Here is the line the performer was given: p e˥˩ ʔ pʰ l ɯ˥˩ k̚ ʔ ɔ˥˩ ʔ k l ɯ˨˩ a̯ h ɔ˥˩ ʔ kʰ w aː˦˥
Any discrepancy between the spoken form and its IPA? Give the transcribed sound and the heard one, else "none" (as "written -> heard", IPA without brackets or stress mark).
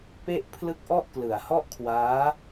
none